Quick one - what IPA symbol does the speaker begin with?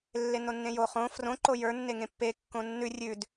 lː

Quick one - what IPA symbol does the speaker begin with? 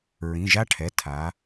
ɹ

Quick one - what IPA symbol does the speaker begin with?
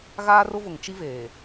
ɣ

